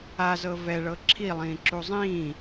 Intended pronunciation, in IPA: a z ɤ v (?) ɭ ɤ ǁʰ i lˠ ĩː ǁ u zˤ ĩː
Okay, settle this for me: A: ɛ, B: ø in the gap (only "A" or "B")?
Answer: A